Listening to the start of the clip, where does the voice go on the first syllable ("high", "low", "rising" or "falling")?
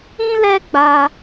high